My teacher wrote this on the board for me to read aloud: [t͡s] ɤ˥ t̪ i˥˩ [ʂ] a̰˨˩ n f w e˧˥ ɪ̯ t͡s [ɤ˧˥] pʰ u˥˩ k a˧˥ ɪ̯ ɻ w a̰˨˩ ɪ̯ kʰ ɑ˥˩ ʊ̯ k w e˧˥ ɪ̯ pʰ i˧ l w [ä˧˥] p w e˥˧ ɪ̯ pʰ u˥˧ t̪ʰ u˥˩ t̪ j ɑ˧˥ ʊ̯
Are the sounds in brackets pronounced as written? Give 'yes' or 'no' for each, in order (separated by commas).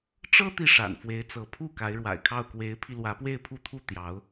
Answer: no, yes, yes, yes